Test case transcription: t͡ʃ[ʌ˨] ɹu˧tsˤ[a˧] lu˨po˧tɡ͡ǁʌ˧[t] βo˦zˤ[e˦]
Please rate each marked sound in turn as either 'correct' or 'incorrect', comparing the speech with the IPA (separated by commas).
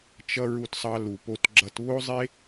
incorrect, incorrect, correct, correct